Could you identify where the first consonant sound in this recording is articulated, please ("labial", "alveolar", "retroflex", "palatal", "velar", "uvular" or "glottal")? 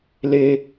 alveolar